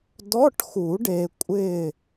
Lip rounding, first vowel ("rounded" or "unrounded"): rounded